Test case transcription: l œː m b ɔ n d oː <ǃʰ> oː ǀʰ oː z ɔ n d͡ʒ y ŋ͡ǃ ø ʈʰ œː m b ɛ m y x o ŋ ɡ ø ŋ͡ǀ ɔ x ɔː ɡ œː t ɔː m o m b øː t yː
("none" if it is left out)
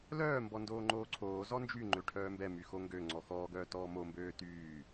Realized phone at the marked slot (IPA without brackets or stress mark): ŋ͡ǃ